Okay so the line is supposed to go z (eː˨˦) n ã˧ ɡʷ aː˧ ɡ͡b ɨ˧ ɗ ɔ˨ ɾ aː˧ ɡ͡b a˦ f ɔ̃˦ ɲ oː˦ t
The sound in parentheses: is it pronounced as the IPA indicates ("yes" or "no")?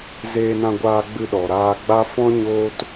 no